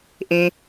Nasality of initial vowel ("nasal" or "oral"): nasal